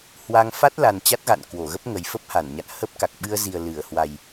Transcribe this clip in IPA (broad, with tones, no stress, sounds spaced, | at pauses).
h w a˧ ŋ f a˦˥ t̚ l a˨˩ n t͡ɕ a˦˥ t̚ ɣ a̰˧˨ n k w o˧˩ ɣ ə˦˥ p̚ ŋ ə˨˩ j f ə˦˥ p̚ h a˧˩ n ɲ a̰˧˨ n h ə˦˥ p̚ k a˨˩ k̚ ɓ ɨ˧ ə̯ z i˨˩ ə̯ l ɨ˧˩ ə̯ h w a˨˩ j